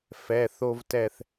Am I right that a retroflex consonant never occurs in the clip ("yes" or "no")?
yes